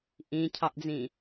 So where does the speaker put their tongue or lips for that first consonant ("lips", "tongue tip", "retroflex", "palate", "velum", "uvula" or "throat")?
throat